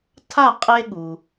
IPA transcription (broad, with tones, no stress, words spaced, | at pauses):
tʰa˥˨qʼe˦ɠu˩